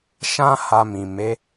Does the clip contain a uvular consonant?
no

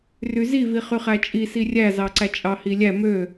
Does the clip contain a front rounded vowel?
yes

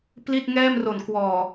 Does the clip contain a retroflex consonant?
no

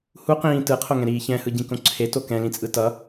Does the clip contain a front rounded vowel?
no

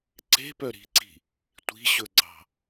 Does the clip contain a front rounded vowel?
yes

